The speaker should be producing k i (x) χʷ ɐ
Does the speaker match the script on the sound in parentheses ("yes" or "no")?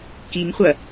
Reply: no